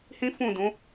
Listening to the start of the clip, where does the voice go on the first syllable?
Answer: high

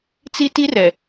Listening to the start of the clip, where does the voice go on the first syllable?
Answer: high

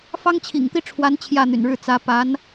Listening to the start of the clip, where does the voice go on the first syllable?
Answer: high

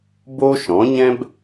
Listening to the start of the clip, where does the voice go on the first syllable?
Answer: high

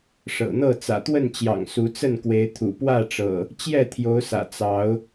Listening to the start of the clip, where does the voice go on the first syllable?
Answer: low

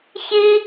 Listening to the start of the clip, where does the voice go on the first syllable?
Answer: high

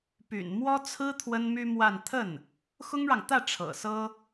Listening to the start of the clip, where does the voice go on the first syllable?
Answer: low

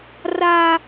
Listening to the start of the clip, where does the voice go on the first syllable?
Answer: high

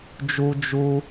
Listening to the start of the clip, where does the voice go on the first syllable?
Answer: high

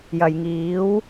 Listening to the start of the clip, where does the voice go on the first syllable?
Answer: low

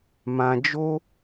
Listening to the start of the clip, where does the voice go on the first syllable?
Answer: low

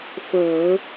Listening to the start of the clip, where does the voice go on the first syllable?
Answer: low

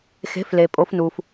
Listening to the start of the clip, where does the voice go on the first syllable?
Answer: rising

